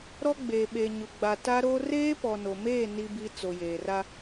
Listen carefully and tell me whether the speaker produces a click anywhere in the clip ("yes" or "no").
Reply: no